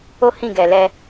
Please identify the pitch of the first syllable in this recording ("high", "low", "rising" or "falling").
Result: high